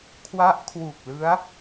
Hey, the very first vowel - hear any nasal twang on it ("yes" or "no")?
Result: no